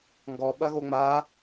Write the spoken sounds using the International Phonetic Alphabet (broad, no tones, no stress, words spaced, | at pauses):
ŋɡɔ ɓɐɣoŋ͡ma